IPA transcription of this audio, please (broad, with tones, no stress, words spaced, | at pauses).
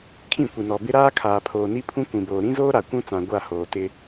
kʰĩ˦˨kʷi˨nɔ˨ bɪ˦ɾaː˦ kʰaː˨pʰoː˨ni˦ pʰũ˦ kʷĩ˨boː˨ ɾĩ˦zoː˦ ɾa˨kʷũ˦t͡sã˨ ɡʷa˦˨hoː˨ tɪ˦